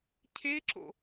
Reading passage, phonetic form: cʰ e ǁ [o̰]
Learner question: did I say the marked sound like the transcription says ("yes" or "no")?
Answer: yes